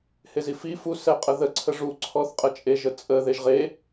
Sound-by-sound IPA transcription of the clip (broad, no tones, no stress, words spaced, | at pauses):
hezifi fu sɛqʼəðə ǀʰəʐu ǀʰɔθqʼət͡ʃʼeʒ ət͡sʼə ðeʒʁe